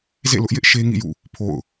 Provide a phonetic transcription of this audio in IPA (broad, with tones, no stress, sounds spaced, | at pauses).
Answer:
z ḛ˦˨ l ʊ˦ ʔ j ɪ˦ ʔ ʃ e˦ ŋ ḭ˦˨ j ṵ˦˨ | pʰ o̰˦˨ ʊ̯